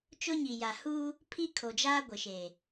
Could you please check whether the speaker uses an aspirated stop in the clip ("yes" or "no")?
yes